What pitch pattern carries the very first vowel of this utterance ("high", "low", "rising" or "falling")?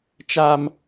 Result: high